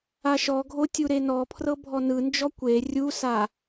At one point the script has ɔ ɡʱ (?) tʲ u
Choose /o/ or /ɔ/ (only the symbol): o